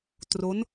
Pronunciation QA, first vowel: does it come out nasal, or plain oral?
oral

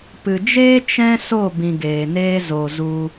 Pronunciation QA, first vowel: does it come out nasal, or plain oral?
oral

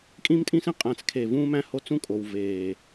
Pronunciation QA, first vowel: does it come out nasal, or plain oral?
nasal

